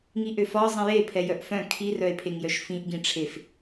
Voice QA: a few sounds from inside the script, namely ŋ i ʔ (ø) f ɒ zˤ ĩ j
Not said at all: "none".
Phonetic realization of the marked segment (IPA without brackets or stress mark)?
ø